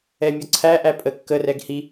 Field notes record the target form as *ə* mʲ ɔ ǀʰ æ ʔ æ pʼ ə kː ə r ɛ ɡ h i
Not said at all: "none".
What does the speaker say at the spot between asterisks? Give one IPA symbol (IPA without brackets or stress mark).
ɛ